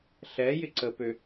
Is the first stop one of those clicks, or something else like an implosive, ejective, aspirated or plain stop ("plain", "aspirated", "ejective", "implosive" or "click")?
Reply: click